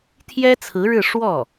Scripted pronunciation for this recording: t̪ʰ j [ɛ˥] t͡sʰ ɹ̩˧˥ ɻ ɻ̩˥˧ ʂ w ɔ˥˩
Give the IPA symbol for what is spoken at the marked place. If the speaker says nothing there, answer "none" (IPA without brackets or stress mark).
ɛ˥